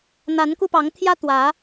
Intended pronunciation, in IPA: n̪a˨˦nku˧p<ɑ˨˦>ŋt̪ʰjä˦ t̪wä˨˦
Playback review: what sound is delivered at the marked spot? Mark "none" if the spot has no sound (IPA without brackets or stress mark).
ɑ˨˦